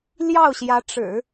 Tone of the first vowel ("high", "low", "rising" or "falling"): falling